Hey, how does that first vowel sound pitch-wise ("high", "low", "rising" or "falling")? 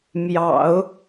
low